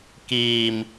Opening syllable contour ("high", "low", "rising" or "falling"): low